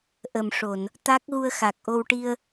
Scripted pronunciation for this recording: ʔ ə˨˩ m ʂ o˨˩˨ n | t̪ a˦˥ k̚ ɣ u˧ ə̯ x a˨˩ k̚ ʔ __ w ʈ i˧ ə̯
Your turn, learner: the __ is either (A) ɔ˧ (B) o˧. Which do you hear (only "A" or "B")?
B